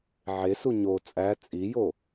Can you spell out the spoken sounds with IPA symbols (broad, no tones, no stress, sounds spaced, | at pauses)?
ʕ e s u ɲ o t͡sʼ æ t͡sʼ i j o